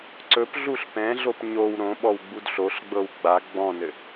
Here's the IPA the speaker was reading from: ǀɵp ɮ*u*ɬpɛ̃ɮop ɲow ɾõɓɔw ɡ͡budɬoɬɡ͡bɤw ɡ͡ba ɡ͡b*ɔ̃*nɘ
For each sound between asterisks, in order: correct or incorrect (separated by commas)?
correct, correct